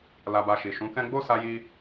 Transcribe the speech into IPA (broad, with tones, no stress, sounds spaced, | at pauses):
l a˨ b a˨ ʃ i˨ ʃ ũ˨˦ k ɛ̃˦ ɡ͡b o˦˨ s a˧ j i˧